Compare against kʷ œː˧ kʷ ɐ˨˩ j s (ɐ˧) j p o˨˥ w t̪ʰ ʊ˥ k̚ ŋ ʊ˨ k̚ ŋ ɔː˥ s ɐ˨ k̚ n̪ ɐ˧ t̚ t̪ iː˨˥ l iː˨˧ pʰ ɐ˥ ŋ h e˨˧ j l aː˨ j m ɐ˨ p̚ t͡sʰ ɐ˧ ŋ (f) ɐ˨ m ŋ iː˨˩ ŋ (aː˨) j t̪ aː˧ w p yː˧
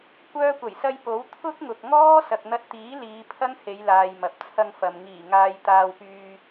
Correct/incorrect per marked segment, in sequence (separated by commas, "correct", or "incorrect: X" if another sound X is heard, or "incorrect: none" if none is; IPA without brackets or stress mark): correct, correct, correct